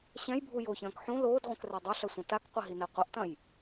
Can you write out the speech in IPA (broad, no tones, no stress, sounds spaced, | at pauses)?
ɕ ɛ̃ j bʱ u j o ç ɐ̃ː k ħ ũ l oː d ʁʷ ɐ̃ k r ɛ dˤ ɘ ɬ ɐ sʷ ɐ̃ t a k qʷ ɘ ɦ i n ɛ qʷ ɐ ʔ t ɐ̃ j